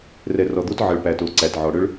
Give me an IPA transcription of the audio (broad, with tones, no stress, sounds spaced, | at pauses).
r ɛ˨ r ɔ˨ d̪ o˦ t ʕ ə˨ ɭ p æ˨ t o˨ ǀ æ˨ t ʕ ɔ˨ ɽ ʏ˦ ɭ